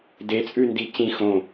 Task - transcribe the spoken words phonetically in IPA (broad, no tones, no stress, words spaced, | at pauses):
det͡sʼʉndi cĩ xõ